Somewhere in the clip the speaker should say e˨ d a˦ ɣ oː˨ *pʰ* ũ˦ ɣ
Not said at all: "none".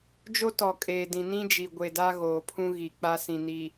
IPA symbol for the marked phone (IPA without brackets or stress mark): pʰ